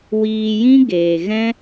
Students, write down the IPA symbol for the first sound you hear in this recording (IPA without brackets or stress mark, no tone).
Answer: w